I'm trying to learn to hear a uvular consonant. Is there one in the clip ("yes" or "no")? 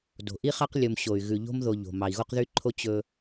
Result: yes